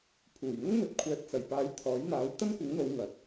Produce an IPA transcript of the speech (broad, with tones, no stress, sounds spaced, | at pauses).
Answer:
pʰ uː˨˩ j n̪ ʊ˥ ŋ n̪ ɵ˨ t̚ kʷʰ ɛː˨˥ t̚ t͡s ɐ˨˩ j p aː˨˧ j t̪ʰ ɔː˨˥ j n̪ aː˨˥ w t̪ ɐ˥ n kʷ ɪ˨˥ ŋ n̪ o˨˧ w ŋ ɐ˨˥ t̚